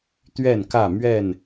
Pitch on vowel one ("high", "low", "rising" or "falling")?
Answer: falling